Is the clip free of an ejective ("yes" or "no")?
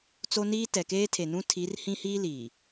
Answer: yes